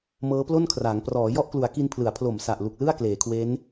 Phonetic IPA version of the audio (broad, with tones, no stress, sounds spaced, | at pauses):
m ɤː˦˥ p l o˥˩ n kʰ r aː˩˦ ŋ p r ɔː˩˦ j ɔ˦˥ ʔ k l u˩˦ a̯ k i˧ n pʰ l ɯ˩˦ a̯ pʰ l o˨˩ m s a˨˩ ʔ l u˨˩ k̚ l ɯ˥˩ a̯ k l eː˩˦ kʰ w e˦˥ n